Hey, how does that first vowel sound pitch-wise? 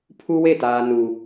high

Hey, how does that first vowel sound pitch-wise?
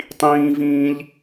high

